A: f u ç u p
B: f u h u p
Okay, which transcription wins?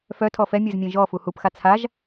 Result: B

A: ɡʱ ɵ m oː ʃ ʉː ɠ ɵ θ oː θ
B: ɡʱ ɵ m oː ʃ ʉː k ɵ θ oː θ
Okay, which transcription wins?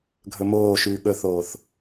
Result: A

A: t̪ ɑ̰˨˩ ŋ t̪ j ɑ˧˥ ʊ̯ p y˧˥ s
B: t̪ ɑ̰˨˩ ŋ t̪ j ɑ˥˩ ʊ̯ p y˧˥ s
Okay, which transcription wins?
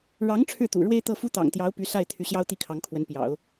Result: A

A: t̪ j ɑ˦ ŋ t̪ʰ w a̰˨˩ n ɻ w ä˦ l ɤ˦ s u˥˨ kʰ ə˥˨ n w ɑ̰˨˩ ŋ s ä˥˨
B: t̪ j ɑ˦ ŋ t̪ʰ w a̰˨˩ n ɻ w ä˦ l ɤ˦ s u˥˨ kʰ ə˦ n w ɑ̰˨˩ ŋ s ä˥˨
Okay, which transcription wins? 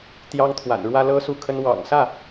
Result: B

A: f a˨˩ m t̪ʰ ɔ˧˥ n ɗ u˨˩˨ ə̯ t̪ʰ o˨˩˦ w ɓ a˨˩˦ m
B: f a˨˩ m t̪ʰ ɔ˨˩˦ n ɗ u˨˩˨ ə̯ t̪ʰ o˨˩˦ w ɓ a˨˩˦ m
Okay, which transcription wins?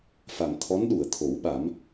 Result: A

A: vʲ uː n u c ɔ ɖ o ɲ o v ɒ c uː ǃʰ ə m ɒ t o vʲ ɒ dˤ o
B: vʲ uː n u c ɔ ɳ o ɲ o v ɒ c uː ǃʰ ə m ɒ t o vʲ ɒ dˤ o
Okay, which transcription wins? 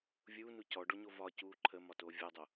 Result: A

